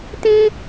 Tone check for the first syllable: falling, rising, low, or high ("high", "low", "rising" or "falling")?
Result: high